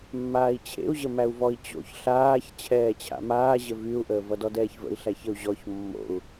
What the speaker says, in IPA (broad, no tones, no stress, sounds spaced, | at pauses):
mː aː i̯ t͡ɕʰ ḛ u̯ ʑ ə m æ u̯ v ɔ i̯ t͡ɕ o̰ ç ɬ aː ç t͡ɕʰ ɛː t͡ɕʰ a̰ m aː ʑ ə v y u̯ ʔ əː v ʌ d ɔ d ɛː ç v ə̰ i̯ ɬ æ ç ə u̯ ʑ ɔ ç mː o̰ u̯